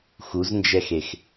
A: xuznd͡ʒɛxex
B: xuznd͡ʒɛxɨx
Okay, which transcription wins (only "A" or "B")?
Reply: A